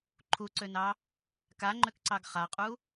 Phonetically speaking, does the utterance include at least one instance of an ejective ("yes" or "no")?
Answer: yes